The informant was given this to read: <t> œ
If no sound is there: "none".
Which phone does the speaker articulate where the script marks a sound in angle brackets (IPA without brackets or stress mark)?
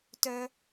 t